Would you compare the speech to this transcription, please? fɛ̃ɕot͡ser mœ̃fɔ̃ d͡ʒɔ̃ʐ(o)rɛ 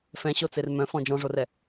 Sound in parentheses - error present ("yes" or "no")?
no